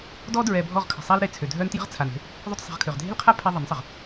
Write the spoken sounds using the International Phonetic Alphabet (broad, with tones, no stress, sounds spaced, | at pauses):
d ɔ˦ d ɹ ɛ˨ bʱ ɔ˦˨ ʁ kʰ ə̤˨ sˤ a˦ l ɾ e˨ t͡sʰ ø˨ dʱ œ˦ n t j ə̤˦ ʁ t͡sʰ a˨ n e̤˧ | ðˤ ø˦ t sˤ e̤˧ ʁ kʰ ø˨ ʁ dʱ e̤˦ l qʰ a˦ pʰ ɛ˧ ðˤ ə˨˦ n sˤ ə˨ ʁ